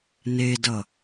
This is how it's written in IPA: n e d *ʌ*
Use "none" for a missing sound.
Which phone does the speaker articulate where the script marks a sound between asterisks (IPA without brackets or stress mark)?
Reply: ʌ